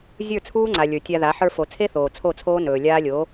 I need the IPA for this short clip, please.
zʲ ə˞˦˨ t͡sʰ uː˦ ŋ͡ǀ a˨ lʲ ə˞˨ tʲ a˧ ð a˨˦ ħ ə˞˧ f o˨ t͡sʰ e˦ θ oː˨ t͡sʰ o˦˨ t͡sʰ oː˦ n ɵː˨ lʲ aː˦ lʲ oː˨˦

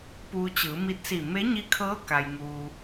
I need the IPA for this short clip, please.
p uː˧ t͡ɕ ɯː˩˧ m i˧˥ t̚ s i˧˩ m e˧˥ ɲ i˧˥ kʰ ɤː˧˥ k a˩ j ŋ uː˩

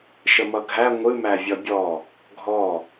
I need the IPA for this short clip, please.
ʃ ə m ʌ ɡʱ æ ŋʷ ɨ m æ vʲ ʌ bʲ ɔ | ɡʱ ɔ

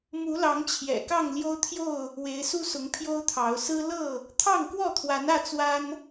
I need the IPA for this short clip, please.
m u˨˦ l ɑ˨˦ ŋ t͡ɕʰ j ɛ̰˨˩ k ɑ˥˨ ŋ l j o˦ ʊ̯ t̪ʰ j o˥˨ ʊ̯ | w e˨˦ ɪ̯ s u˦ s ʊ˨˦ ŋ pʰ j o˦ ʊ̯ t̪ʰ ɑ˨˦ ʊ̯ s ɹ̩˦ l ɤ˥˨ | t̪ʰ ɑ˥˨ ŋ k w ɔ˥˨ t̪ʰ w a˨˦ n ä˥˨ t͡s w a˦ n

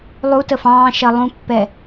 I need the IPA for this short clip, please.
lˠ u t ə f ɑ̃ː ʃ ɜ lˠ ũ pː ɛ

